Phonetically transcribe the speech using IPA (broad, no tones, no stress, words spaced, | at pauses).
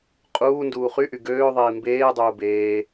qʼuː nduːχyʔy ɡøːðˤiː mbeːdˤuː beː